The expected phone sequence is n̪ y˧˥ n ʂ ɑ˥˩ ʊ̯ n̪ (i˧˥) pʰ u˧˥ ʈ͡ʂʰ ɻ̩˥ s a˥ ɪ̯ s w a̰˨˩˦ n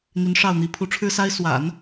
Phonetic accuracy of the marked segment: correct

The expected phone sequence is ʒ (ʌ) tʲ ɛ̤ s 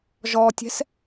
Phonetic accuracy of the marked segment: incorrect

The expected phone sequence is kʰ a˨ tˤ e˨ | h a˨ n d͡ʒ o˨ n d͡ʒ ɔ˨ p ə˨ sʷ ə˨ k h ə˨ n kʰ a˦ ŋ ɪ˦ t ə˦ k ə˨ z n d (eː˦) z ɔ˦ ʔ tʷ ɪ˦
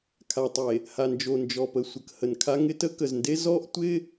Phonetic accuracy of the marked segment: incorrect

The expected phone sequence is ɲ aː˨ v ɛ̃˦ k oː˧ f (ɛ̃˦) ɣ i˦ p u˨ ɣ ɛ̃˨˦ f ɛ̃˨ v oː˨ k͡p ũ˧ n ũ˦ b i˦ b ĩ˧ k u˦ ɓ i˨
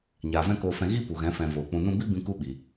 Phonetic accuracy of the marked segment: incorrect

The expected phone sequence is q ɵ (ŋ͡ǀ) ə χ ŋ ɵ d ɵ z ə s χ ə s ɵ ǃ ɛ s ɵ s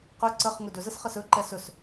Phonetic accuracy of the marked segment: incorrect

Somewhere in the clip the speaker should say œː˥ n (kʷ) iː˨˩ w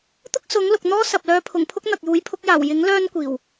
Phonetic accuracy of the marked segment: correct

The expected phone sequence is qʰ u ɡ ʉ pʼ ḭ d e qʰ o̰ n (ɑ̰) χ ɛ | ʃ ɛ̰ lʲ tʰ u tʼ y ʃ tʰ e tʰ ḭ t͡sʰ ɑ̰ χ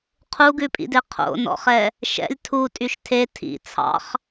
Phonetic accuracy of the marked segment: incorrect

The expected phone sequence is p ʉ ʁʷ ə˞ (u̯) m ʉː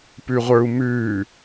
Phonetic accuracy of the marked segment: correct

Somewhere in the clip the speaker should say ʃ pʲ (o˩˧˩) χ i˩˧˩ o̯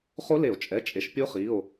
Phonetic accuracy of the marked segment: incorrect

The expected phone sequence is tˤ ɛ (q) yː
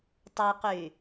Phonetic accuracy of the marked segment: correct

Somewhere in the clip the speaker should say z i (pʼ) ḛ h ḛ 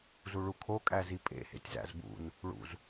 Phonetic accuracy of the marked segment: correct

